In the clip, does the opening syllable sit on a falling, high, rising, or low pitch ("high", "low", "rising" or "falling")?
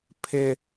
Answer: high